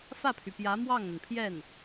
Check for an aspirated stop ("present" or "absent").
present